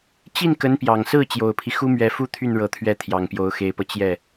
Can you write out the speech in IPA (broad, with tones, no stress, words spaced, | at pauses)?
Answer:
t͡ɕi˥˩n kə˧˥npjɑ˨˩ŋsɹ̩˥˩ t͡ɕjo˨˩ʊ̯pʰi˦ xu˥mɥɛ˧˥fu˥t̪ʰy˥˩n ɻɤ˨˩t̪ʰɥɛ˧˥ t̪ʰjɑ˨˩ŋpjo˧˥ʊ̯xe˧˥ɪ̯pɤ˧ t͡ɕjɛ˥˩